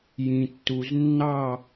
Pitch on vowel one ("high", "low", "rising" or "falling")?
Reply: low